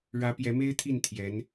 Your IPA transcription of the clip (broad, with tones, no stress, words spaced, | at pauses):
ɻä˧˥pjɛ˧˥me˥ɪ̯t̪ʰi˥˩n t̪ʰjɛ˧˥n